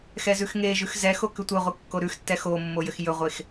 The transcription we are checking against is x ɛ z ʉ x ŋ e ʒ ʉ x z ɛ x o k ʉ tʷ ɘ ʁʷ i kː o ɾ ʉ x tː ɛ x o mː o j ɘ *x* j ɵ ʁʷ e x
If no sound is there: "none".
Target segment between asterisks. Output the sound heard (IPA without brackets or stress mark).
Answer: x